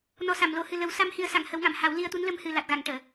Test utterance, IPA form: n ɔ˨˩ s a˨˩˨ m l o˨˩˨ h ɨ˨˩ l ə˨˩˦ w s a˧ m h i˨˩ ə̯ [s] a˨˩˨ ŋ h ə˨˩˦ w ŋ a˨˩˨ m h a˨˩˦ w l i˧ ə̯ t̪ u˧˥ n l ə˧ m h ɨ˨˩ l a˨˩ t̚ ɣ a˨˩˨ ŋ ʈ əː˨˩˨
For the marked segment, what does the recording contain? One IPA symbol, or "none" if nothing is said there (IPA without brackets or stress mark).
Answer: s